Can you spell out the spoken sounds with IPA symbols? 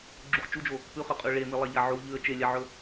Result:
ɡ͡ǁuχ t͡ʃud͡ʒo | pʉχɵqʼʉ ɭemilˠaʎa ʕu ʎʉə̯ t͡ʃelʲaʕɵ

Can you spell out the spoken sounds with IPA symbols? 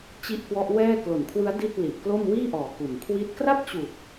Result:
t͡ɕi˥˩ʔkwɔ˦˥ʔ wɛː˥˩ klo˨˩nkʰwɯ˦˥a̯ di˥˩t̚ li˨˩ʔklo˥˩m wiː˥˩ʔɔː˨˩ ku˨˩nkʰwi˥˩t̚ kra˥˩p̚t͡ɕu˨˩k̚

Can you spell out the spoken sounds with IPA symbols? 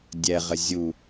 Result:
dʲɛʁə zʲu

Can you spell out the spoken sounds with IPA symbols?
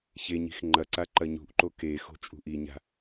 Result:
çeɲi̤x ŋ͡ǃɐǀa ǃɐɲṳʔǃo kexo̤ t͡ʃʼṳʔiɲa̤

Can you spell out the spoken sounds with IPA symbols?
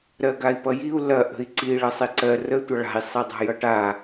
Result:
ɾɜɡai̯pʌjiu̯ lɐ ʔə̤i̯ǀi ɭɜsˤiǀɜ rə tʷʌɭa̤i̯ sˤidˤa̤jʌʈa

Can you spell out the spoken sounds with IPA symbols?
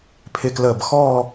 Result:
pʰɪ˧kləː˧˩bxɔː˥˧

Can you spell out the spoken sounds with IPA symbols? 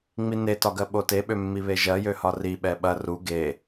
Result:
ŋ͡minetɒ ɡɜɓoteɓø mːiβeʒɜjø hɒriɓɛ ɓɐ ru ɡe

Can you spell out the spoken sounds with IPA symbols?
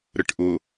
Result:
ɾəʈʔʊ

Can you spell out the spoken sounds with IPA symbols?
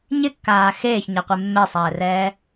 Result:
ɲɪkːaː xeːçɲɛqʷe mːesˤɛːrɛː

